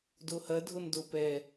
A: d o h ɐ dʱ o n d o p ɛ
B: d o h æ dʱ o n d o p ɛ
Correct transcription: A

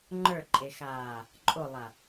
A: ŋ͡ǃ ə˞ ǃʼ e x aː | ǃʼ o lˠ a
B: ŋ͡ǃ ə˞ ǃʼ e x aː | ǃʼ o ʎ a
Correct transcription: A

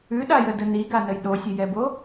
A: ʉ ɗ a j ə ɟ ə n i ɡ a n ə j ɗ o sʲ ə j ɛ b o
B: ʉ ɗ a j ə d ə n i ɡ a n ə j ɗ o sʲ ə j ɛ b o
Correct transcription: B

